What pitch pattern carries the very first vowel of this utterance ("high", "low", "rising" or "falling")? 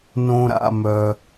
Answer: high